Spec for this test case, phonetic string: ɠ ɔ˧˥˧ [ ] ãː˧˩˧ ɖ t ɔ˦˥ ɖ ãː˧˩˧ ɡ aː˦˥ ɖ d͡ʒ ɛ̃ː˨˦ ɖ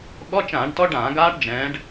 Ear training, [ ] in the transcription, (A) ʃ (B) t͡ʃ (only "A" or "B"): B